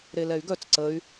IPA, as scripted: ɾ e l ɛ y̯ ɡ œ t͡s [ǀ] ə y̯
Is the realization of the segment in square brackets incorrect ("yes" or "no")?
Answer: no